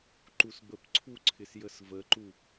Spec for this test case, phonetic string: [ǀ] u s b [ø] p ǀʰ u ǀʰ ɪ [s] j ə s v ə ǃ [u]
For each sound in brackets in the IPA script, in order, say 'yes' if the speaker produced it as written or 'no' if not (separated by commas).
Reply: no, no, yes, yes